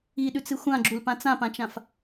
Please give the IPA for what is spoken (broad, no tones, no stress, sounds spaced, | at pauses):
i ɗ ʉ t͡s ɨ xʷ ã ɡ͡ǁ u l p ã t͡s ã p ã t͡ʃ ã f